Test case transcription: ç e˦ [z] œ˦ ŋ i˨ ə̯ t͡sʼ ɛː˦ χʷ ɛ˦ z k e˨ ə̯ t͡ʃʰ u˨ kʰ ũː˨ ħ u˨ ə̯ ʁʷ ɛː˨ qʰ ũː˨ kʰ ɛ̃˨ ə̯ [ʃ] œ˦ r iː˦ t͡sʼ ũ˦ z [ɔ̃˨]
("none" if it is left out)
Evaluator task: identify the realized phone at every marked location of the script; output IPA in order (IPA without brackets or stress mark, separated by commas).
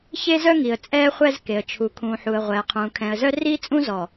z, z, ɔ˨